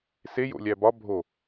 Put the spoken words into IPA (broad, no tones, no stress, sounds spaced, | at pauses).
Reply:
s e j o̰ lʲ æ b ɒ bʱ o